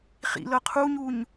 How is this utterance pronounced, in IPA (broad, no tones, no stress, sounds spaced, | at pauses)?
χ ḭ l ɤ qʰ u ɲ u ɲ